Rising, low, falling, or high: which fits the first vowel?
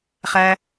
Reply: low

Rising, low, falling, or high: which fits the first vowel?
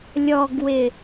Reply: low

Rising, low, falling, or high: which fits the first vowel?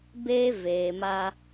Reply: high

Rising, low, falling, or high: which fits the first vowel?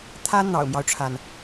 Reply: high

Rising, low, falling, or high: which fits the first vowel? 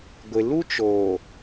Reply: low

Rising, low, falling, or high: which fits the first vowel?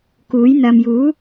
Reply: rising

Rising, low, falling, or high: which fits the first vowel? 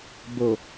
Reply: low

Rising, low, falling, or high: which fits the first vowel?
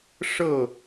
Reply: falling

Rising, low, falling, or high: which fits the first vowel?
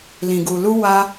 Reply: low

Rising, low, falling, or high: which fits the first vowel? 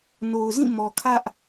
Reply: low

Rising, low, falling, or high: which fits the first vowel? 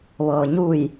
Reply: low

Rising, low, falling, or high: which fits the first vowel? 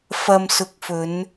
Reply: low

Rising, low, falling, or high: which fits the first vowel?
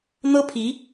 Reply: high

